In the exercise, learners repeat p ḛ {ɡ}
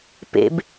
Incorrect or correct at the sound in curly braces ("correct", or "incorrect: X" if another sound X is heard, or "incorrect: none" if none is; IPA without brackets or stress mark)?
incorrect: b